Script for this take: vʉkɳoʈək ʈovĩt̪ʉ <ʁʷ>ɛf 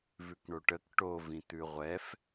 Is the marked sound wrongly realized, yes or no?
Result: no